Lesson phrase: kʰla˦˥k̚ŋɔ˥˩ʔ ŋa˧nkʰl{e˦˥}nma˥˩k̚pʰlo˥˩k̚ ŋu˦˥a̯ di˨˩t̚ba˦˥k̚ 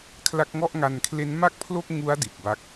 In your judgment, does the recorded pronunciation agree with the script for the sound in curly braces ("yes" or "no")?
yes